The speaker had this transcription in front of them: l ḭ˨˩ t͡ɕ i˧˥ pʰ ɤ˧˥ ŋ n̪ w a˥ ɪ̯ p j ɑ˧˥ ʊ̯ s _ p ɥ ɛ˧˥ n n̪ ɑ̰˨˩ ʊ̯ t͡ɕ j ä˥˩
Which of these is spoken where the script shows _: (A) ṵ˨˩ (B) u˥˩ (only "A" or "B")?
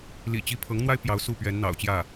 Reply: B